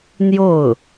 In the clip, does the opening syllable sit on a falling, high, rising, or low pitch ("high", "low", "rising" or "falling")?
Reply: falling